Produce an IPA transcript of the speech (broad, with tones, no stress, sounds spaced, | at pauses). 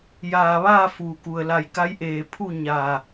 j aː˧˩ ʋ aː˥˨ f uː˩ k u˩ ə̯ l a˧˩ j k a˧˥ j ʔ eː˧˩ pʰ u˥˨ ɲ a˧˩